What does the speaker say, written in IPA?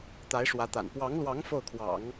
t̪a˧˥ɪ̯ʂwä˧˥t̪a̰˨˩n pwɑ˧˥ŋlwɑ˧˥ŋ fo˥˩ʊ̯kʰwɑ̰˨˩˦ŋ

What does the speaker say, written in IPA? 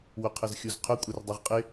wʊqʰəzxʲuzqʰʊ kʷʼɛrdˤɤʁqʼɪ

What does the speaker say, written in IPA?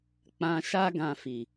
k͡pã˧ʃa˦ ɡã˧fi˨

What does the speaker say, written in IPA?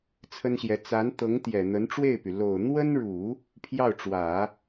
t͡sʰə˥nɕjɛ˧˥ t͡sa˧˥nt̪ɤ˧˥ŋ t̪jɛ˨˩n̪ə˧˥nʈ͡ʂwe˥˩ɪ̯py˩ lo˨˩ʊ̯n̪wə˥nɻu˨˩˦ | pʰjɑ˥˩ʊ̯ʈ͡ʂwä˨˩˦

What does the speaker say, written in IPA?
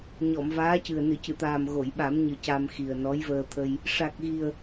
ɲɔ˨˩˨mvaː˧˥cɨ˨˩ə̯ nɨ˨˩˨cɨ˨˩˨t̪aː˨˩m ɣo˨˩˨jɓa˨˩˦mɲɨ˨˩ ca˧mxi˨˩ə̯ nɔ˧˥jvəː˧t̪ʰə˧j | ʂa˨˩k̚ɣi˨˩ə̯

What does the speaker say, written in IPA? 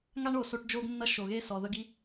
ŋa˦ɳ o˨ so˧ʈd͡ʒo˦ɡnːʌ˦ ʃo˨ɣe˦ sɔ˨ðə˦ɡi˦

